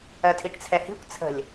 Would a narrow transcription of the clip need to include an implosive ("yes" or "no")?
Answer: no